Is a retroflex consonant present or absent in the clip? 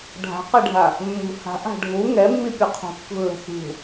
present